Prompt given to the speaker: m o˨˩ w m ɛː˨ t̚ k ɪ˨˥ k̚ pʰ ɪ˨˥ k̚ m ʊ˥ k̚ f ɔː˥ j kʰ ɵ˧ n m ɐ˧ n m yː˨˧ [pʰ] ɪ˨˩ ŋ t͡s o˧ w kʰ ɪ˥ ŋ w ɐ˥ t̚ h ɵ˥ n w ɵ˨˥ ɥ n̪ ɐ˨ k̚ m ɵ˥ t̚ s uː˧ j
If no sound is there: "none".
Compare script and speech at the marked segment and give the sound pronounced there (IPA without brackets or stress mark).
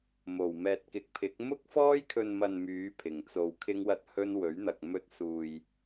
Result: pʰ